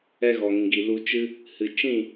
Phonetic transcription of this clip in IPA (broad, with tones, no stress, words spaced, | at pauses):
ɛ˧ɣɔ˨ŋĩ˨ɡi˨ lu˧ t͡ʃɨ˧ | hɨ˨t͡ʃĩ˦˨